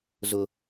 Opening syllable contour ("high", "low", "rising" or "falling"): low